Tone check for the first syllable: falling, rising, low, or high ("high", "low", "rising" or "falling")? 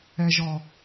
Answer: low